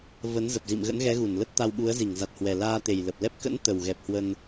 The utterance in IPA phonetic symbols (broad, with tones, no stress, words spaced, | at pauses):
və˨˦nzə˨˩p̚zḭ˧˨m ɣə̰˧˥nɣɛ˨˦ɣu˧˩n lə˦˥t̚t̪a˧wɓu˨˦ə̯ zi˧˩ŋza˨˩t̚hwɛ˨˩laː˧ t̪e˨˩jlə˨˩p̚lɛ˦˥p̚ kə̰˧˥n t̪ə˨˩wɣɛ˨˩p̚hwə˧n